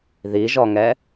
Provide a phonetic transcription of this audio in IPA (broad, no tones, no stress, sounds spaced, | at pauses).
ð i ʒ ɔ ŋ ɛ